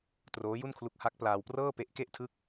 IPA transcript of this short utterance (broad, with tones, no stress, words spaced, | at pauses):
troː˦˥ju˥˩nkʰlu˦˥k̚ ha˦˥k̚plaː˧wprɤː˥˩ pe˦˥ʔke˥˩ʔtʰɯ˥˩k̚